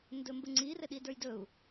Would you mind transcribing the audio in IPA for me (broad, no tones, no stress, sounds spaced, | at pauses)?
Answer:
n d ɵ m b ɘ ŋ͡ǀ i r ɘ ɗ i d ə˞ j d ɵ u̯